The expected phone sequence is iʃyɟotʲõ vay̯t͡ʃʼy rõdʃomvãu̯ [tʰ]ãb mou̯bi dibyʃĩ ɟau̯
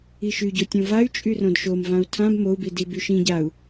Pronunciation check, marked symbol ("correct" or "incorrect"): correct